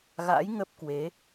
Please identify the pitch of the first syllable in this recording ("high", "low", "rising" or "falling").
rising